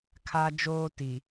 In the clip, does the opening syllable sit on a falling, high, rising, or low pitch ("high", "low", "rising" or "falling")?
high